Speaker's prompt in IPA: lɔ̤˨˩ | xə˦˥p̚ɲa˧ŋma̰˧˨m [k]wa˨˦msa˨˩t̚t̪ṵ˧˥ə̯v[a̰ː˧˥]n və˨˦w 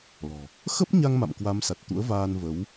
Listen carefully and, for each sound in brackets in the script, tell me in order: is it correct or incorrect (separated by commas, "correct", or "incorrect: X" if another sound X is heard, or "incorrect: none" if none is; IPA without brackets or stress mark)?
correct, incorrect: aː˧